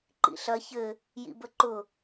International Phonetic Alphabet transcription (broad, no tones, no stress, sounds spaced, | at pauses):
ǃ ḭ ɬ ɐ ç ɘ | j ḭ b ə ǃ ʊ